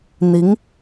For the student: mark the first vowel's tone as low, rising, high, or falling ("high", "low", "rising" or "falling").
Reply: rising